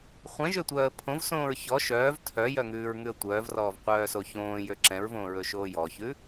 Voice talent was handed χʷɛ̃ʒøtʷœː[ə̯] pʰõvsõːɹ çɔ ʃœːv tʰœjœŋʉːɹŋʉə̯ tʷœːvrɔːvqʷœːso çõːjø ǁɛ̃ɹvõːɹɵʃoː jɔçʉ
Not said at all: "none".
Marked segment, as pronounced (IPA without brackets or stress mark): ə̯